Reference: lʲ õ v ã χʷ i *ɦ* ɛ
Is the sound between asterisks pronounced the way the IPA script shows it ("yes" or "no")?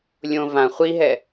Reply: yes